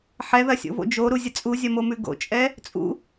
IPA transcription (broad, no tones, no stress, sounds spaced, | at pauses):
ħ ɛ ð ɐ sʲ o̰ v o̰ d͡ʒ o ɾ u zʲ ə t͡sʼ u zʲ ɐ m o m ʉ ɡ o̰ t͡ʃʼ ɛ | t͡sʼ ṵ